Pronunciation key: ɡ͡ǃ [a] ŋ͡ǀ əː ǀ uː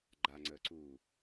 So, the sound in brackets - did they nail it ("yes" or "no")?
yes